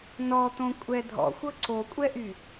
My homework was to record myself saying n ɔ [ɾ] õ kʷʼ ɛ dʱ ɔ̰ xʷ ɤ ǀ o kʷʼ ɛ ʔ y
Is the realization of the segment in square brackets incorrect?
yes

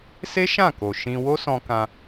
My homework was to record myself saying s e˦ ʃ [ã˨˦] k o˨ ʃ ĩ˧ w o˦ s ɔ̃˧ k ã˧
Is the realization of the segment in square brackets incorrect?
yes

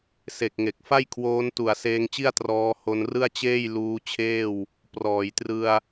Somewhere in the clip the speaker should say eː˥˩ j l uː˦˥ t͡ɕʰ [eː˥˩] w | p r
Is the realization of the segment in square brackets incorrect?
no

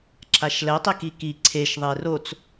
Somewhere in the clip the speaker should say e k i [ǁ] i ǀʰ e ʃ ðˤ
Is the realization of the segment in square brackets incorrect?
yes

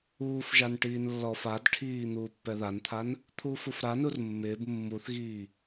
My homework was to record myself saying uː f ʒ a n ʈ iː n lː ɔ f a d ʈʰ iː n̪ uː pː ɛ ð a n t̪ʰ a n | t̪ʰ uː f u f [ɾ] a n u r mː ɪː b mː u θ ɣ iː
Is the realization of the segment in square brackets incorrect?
no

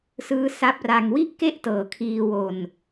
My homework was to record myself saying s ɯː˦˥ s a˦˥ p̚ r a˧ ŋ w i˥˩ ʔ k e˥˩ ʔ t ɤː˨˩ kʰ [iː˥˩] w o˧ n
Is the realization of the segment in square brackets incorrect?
yes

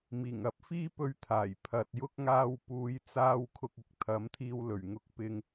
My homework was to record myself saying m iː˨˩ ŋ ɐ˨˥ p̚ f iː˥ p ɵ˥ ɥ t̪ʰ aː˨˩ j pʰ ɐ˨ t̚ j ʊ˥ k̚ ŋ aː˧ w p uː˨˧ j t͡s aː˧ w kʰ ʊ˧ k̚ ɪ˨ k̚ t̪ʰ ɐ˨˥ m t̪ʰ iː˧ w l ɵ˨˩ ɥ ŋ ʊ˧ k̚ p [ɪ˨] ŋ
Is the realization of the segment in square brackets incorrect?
yes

